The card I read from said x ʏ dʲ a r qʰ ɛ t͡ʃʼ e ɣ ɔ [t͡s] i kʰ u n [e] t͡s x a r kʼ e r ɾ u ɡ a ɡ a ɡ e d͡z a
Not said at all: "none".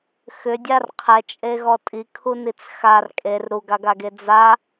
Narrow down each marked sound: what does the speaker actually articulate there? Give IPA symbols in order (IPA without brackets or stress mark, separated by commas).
tʼ, i